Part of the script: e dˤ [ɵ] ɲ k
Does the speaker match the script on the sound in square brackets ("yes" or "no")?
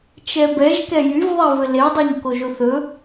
no